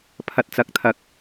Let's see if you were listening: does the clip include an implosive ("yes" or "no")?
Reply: no